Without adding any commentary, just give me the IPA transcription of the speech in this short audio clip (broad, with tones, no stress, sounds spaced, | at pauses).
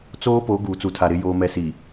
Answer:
t͡s oː˦ p o˨˦ ɡ uː˨ t͡s u˨ tʰ a˨ ɾ ɪ˨ j oː˨ m ɛ˨ s i˨